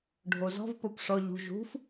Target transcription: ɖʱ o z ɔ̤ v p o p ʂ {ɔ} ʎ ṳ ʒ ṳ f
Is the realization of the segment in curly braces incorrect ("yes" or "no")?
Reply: no